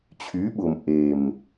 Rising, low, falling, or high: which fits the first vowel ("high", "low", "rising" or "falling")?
rising